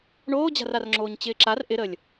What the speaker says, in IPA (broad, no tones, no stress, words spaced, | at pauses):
ɳoːd͡ʑa̤rarŋ͡ǁoːɲ t͡ɕɪːǁar ʔɪɾəːlʲ